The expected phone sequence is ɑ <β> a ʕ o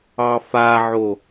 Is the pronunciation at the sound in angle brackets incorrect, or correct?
incorrect: f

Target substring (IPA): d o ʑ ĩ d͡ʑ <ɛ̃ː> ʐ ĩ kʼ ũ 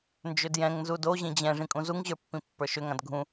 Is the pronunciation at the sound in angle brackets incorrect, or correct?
incorrect: ɛ̃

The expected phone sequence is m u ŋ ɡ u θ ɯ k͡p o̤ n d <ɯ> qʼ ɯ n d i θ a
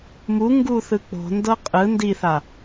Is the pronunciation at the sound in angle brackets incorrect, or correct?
incorrect: ɤ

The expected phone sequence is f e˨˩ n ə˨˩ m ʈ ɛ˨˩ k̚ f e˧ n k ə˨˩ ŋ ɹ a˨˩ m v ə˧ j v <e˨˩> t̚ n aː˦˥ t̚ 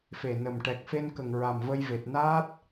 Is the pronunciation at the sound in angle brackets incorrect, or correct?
correct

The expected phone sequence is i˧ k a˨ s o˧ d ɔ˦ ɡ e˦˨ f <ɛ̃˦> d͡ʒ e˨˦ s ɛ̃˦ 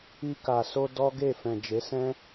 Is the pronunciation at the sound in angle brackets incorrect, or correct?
incorrect: ɛ̃˨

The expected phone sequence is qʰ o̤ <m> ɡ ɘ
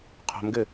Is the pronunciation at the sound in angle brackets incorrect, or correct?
correct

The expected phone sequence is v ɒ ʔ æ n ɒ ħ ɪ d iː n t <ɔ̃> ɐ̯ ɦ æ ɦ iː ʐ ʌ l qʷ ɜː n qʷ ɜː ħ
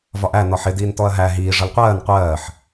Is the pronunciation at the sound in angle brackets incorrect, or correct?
incorrect: ɔ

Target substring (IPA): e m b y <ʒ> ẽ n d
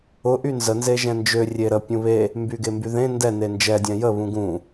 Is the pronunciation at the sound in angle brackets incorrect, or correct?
incorrect: ð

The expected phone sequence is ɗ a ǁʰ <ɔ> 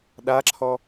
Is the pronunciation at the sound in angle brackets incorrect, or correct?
correct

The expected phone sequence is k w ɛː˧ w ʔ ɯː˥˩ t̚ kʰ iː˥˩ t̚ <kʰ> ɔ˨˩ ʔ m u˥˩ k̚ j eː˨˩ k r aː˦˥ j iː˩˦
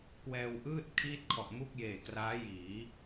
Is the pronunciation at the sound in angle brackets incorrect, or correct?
correct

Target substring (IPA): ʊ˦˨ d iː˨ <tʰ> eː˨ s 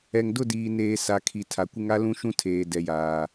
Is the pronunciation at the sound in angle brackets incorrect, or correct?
incorrect: n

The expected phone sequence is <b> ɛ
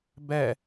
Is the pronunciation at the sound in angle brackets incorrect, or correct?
correct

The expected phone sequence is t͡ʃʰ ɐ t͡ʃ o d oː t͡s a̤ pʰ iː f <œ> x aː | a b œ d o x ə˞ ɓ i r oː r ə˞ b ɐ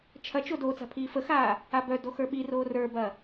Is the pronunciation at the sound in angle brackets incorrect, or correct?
incorrect: ə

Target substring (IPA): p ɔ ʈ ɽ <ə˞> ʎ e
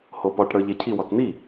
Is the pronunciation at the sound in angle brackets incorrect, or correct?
correct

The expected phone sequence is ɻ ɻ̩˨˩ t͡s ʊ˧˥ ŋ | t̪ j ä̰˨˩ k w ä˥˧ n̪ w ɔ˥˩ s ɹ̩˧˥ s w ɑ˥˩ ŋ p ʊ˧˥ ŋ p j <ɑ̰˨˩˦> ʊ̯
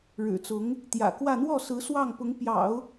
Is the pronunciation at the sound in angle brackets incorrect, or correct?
correct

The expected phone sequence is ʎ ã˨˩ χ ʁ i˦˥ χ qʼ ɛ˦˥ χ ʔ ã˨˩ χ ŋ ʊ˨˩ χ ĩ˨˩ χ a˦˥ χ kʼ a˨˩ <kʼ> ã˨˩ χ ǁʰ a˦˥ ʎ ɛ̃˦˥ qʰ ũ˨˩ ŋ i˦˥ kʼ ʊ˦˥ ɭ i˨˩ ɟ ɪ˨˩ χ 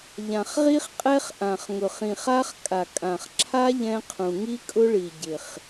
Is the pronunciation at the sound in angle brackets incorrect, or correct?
correct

